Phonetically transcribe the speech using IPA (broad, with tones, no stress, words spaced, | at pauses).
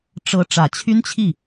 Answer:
ʈ͡ʂɤ˧˥ ʈ͡ʂä˨˩t͡ɕʰy˥nt͡ɕʰi˥˩